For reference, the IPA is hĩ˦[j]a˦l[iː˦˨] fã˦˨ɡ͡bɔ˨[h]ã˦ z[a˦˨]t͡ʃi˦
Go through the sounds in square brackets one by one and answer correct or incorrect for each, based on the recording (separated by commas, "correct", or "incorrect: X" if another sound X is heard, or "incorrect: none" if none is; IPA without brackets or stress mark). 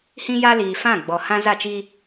correct, incorrect: iː˨, correct, correct